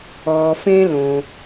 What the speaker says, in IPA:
ɔː˩ fẽ˥lõ˩

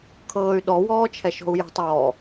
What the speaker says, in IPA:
kʰɤːy̯ɗɔ wɔːt͡ʃʰɛʃɔ̤u̯jɛ̤tˤ ɔː

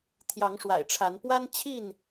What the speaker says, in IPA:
t̪ʰjɑ˨˦ŋʂwa̰˨˩ɪ̯ʈ͡ʂʰa˨˦n pwa˦nt͡ɕʰi˥˨n

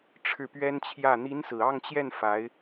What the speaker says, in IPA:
ʈ͡ʂʰɻ̩˥˩pɥɛ˥nt͡ɕʰjä˥˩ n̪i˧˥n sɹ̩˨˩ɑ˥˧ŋt͡ɕjɛ˥˩n fa˧˥ɪ̯

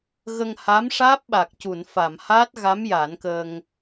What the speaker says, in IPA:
ɣə˧ŋha˧˥mʂaː˦˥p̚ɓa˨˩k̚ cu˨˩˨nfa˨˩˨mhaː˦˥t̚ɣa˧˥m ja˨˩˦nkə˧ŋ

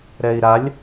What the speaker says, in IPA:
ɾɛi̯ɾalʲ

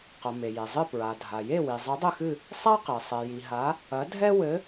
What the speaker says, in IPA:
qɐ˩ me˩je˩zˤɨ˦˨ pɹa˩dʱa˩ je˦˨wi˩ zˤɨ˨˦dˤɘ˦˨xɨ˦˨ | sˤa˦qe˩ sˤɛ˩ji˩ ɦa˨˦ | ɐ˨˦ dʱɛ˦wɘ˨˦

